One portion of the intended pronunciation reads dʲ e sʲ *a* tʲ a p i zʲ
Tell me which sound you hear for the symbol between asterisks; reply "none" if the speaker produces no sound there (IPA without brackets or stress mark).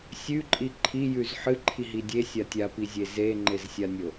a